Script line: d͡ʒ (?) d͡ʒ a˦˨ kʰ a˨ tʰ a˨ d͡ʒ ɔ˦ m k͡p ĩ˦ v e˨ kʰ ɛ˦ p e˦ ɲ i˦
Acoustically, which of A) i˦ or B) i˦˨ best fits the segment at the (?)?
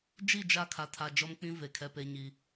B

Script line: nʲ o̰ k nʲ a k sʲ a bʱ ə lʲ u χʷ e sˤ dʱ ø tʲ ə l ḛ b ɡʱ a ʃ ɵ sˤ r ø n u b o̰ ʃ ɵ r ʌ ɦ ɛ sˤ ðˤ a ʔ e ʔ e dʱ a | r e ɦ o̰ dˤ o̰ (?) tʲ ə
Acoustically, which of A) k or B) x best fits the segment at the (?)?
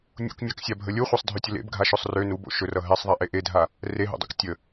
A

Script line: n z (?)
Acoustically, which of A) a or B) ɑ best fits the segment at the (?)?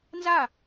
A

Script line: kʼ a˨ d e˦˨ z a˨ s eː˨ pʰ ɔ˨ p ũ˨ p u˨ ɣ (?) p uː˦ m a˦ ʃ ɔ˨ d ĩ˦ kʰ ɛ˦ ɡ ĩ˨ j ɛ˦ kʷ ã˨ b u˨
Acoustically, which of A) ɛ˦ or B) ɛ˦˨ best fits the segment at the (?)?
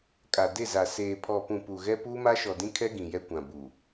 A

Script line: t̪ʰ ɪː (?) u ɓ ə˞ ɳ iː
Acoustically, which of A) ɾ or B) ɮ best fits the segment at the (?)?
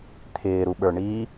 A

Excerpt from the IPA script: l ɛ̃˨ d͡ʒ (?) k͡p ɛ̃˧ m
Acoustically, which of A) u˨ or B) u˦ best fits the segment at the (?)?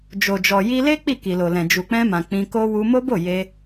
A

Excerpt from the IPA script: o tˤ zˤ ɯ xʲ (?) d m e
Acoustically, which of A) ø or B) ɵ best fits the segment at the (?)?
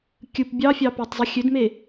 A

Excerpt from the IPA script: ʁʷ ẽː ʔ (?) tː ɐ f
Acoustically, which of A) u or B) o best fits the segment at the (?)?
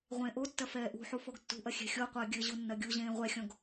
B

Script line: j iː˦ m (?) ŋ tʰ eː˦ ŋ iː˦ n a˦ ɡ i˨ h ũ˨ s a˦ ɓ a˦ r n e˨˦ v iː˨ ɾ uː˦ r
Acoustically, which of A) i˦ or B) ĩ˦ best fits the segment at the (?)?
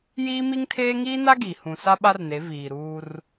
A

